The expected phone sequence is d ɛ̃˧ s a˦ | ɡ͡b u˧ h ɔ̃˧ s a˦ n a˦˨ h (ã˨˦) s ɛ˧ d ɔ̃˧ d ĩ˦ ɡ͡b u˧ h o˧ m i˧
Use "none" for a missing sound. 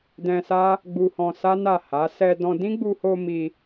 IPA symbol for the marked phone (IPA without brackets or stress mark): a˨˦